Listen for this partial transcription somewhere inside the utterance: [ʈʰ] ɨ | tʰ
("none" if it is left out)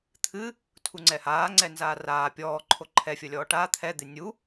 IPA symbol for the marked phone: t̪ʰ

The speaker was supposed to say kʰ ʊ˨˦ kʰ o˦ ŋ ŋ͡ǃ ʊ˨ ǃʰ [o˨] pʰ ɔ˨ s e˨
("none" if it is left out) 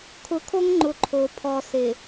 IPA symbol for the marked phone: o˨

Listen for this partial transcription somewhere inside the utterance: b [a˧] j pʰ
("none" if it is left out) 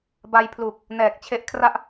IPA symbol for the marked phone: a˧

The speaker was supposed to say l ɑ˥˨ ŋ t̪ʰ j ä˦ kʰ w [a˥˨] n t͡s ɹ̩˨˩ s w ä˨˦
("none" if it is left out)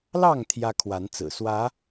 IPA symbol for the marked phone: a˨˦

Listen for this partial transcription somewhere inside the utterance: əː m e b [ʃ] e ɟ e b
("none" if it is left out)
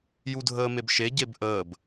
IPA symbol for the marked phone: ʃ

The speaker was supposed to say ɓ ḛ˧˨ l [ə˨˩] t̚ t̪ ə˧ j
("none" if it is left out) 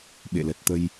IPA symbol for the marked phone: ə˨˩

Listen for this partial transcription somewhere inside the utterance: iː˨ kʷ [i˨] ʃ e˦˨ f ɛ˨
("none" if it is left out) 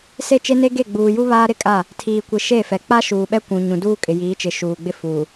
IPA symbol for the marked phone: i˨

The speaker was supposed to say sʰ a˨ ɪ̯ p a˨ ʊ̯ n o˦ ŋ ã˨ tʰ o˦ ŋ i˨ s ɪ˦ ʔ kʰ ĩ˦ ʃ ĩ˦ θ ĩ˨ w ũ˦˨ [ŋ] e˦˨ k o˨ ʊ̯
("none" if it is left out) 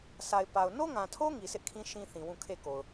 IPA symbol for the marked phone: kʰ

